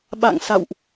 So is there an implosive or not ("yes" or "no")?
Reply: yes